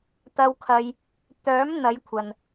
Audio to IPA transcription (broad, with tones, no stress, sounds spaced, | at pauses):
t̪ ɐ˧ w kʰ ɐ˧ j | t̪ œː˨˥ m n̪ ɐ˨˧ j kʷʰ ɐ˨ n